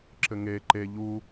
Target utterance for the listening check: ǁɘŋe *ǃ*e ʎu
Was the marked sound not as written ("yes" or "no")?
no